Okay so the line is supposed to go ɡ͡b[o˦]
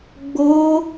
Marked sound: correct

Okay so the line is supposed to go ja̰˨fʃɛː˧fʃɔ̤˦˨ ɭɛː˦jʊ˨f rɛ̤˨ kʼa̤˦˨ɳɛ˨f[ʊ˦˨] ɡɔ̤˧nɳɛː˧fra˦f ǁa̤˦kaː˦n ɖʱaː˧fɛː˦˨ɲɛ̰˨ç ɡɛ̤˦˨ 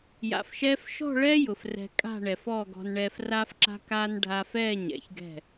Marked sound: incorrect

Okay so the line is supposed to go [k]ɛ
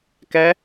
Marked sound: correct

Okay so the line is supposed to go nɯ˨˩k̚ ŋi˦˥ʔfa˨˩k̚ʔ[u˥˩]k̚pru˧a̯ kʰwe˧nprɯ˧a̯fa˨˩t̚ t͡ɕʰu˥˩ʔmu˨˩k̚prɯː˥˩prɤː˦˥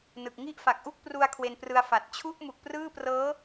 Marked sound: correct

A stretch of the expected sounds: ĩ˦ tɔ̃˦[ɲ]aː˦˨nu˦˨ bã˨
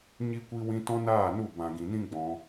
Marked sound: incorrect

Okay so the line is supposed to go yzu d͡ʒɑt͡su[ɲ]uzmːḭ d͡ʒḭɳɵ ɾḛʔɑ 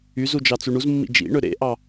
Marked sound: incorrect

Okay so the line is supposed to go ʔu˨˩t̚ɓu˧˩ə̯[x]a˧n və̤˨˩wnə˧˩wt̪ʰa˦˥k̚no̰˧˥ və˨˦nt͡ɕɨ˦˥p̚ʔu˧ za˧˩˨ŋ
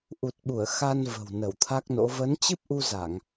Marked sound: correct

